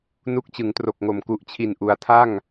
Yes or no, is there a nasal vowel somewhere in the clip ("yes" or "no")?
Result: no